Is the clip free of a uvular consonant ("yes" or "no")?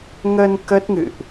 yes